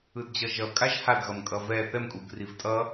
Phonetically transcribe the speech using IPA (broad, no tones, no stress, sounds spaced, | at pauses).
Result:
ɯ d d͡ʑ ʌ ʒ ʌ kʼ a ʒ h a d ɣ ʌ m kʼ ʌ v ɛ θ ɛ m kʼ u ɡ r i v tʼ ʌ